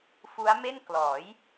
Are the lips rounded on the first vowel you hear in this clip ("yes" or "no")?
yes